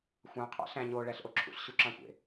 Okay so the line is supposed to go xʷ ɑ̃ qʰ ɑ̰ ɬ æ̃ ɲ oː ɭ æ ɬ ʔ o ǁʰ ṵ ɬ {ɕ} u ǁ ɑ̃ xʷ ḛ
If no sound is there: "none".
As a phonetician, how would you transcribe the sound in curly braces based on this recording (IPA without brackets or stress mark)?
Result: ɕ